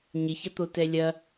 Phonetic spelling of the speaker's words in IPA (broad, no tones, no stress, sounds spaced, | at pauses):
ɲ ɪ ç ɐ t̪ o t ɛ lʲ ɐ